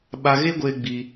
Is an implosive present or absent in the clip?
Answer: present